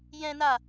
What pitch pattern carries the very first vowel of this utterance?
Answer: high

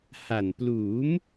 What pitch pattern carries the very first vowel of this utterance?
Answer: low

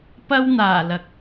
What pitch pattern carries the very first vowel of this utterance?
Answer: high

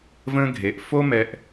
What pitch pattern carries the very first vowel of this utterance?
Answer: high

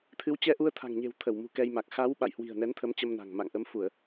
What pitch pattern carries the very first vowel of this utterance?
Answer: rising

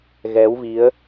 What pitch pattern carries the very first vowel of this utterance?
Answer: rising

